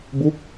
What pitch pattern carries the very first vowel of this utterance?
falling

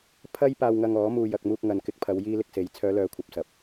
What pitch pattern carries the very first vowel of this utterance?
high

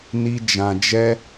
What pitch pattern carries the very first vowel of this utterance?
high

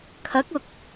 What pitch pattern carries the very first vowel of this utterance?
rising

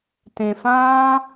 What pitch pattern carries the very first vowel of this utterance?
low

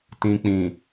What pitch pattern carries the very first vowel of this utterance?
low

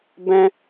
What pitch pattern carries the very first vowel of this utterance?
high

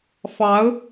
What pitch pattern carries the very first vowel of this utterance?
rising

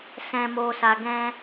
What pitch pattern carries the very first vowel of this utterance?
low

